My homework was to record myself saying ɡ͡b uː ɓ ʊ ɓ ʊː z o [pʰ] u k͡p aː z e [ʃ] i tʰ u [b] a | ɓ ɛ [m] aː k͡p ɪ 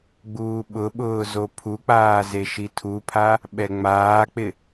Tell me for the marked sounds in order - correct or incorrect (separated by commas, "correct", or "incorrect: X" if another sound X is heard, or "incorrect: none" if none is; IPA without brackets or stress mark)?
correct, correct, incorrect: pʰ, incorrect: ŋ͡m